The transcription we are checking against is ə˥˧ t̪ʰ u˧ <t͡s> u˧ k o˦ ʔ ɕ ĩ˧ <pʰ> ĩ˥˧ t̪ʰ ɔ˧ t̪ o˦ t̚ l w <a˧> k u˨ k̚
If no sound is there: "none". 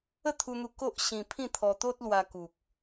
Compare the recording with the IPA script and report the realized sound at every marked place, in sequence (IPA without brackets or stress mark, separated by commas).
n̪, pʰ, a˧